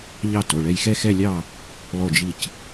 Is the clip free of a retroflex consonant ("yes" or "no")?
no